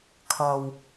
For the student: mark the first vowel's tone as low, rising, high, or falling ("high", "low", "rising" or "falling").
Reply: low